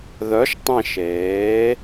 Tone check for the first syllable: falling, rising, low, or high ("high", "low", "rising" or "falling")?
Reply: rising